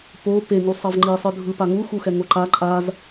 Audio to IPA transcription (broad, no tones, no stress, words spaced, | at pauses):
po pe ŋusˤʌvŋ͡ǃi sˤɯdʱɯ paŋu xuxɛŋoǃa ǃʼaz